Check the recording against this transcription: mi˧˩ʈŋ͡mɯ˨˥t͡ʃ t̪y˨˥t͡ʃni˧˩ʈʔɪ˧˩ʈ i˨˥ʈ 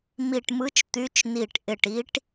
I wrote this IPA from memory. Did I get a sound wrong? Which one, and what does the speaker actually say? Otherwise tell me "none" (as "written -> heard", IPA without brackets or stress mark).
ŋ͡m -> m